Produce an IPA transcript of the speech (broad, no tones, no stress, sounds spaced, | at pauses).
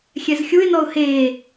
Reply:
xʲ ɛ z xʲ u ɪ̯ n ɔ ʊ̯ h eː